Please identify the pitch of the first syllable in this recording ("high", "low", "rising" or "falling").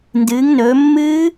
rising